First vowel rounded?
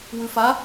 yes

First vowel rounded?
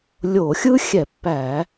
yes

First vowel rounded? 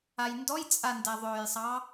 no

